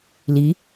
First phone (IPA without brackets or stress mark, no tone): l